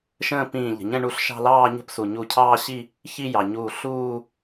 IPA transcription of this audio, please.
ʃə̃ː˥˧pĩː˧˩ʎə̤˩ ɲə̃˥˧ɳu˧˩ɬʃɑ̤˥˧ lɑː˥˧ɲə̤˥˧p su˩ ɲu˧˩cʰɑː˥˧ɕi˥˧ | çi˥˧jɑ˩ɲuː˧˩ ɬuː˥˧

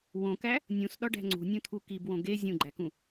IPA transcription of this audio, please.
wõkæ | nʲũsɗɒɖæ̤ ŋ͡ǀṳnʲũt̪ʰu kibwõ ɡe zʲũɡ͡ǃækũ

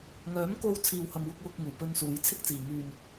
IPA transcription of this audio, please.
ŋœː˨˥mko˧w t͡sʰiː˨whɐ˨mwʊ˧k̚ wʊ˧k̚ŋuː˨˩pɵ˧nsuː˨˧j t͡sʰɪ˥k̚t͡siː˨ ŋyː˨n

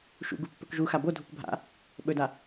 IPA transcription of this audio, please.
ʃṵɡu pːɵkʒuxa bodʱuk bʱa̰ | ɓɵda

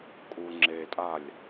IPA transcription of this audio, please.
kʼuŋ͡ǁetʼalʲ

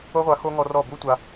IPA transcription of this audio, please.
o˦ʁʷa˧ xo˦ ŋɔ˧rɔ˦˨ bu˦tʷa˧

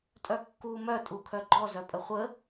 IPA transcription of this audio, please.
tʼœkːu mœ tʼukʰœɡ͡ǃɔ zœpʼəχʷə

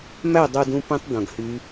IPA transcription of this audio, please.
mæ˥˨ dˤo˧ dũ˦˥pẽ˦˥tˤ dõ˧ɡhy˦˥

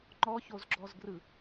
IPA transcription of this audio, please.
ŋ͡ǃɔçozɡ͡ǁɔzɡrɯ

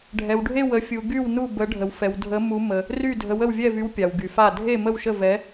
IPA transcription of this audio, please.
ɖʱɛ˧wɖʱe˥˧w ə˧˥fʲu˧ ɡy˥˧wnu˥˧ bə˧˥ɖʱə˧wfɛ˧w dʱə˧˥mu˧˥mə˧ | ry˥˧dʱə˧˥w ə˥˧wvʲɛ˥˧vy˧˥w pʲa˧wɡy˧fa˥˧ dʱe˥˧mə˥˧wʃə˥˧vɛ˧˥

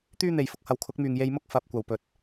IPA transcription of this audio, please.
t̪yː˥n̪e˨jfʊ˨˥k̚ hɐ˨wkʰʊ˨˥k̚myː˨ŋ je˧jmʊ˥k̚ fɐ˨p̚kʷɐ˨˩w pɵ˨t̚

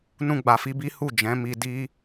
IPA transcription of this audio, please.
nũ˦ɡ͡ba˧fi˦bi˦ hu˦˨ d͡ʒɛ̃˨˦mi˧ di˧

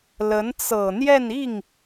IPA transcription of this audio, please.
lə˧˥n t͡sɤ˨˩ n̪jɛ˥˧ni˥˩ŋ

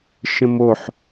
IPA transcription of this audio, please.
ʃə̃moħ

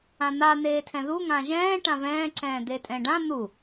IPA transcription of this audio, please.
ãn̪a n̪eːtʰɛ̃ðu ŋãʒɛ̃ː ʈãvɛ̃ː ǀɛ̃ːd̪etʼɛ̃ɖã n̪u

